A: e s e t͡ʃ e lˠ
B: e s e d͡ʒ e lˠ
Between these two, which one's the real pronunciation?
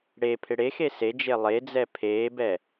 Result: B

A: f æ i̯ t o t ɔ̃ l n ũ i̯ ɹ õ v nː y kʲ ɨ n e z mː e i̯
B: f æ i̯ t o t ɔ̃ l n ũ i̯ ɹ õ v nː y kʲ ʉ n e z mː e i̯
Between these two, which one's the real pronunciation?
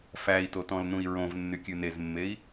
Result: B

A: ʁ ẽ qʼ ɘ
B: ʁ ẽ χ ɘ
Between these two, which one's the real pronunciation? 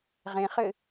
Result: B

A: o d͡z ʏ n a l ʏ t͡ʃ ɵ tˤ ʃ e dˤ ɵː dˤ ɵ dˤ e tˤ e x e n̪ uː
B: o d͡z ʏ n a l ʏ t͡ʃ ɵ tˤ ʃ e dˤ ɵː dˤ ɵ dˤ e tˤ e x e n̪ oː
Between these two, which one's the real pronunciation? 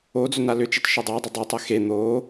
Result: B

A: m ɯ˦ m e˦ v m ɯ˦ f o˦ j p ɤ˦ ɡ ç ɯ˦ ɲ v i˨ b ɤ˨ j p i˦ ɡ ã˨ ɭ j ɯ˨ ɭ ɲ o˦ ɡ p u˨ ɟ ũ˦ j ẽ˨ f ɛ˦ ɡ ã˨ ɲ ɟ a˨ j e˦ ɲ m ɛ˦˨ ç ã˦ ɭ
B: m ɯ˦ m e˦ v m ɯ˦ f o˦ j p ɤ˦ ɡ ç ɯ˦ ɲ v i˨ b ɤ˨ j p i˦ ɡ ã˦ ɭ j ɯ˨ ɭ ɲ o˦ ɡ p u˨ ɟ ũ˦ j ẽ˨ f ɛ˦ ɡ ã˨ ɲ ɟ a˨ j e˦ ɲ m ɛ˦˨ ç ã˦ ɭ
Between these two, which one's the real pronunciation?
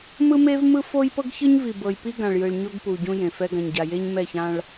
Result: A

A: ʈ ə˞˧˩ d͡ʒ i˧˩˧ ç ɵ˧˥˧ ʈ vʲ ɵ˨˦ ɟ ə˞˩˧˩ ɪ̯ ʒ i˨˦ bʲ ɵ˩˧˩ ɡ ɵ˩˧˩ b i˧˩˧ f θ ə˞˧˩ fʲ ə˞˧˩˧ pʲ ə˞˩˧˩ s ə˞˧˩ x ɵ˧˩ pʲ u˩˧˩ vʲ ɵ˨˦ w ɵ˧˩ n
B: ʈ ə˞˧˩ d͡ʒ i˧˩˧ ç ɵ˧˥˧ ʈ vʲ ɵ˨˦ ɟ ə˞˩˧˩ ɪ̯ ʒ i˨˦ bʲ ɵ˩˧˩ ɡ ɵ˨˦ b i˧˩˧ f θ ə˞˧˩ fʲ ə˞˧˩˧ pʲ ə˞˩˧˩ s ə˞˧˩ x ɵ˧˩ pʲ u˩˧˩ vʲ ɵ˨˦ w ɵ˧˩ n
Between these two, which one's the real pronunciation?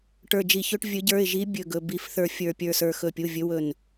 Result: A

